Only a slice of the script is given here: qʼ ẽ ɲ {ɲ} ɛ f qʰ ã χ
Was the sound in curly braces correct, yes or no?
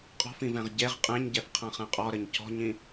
no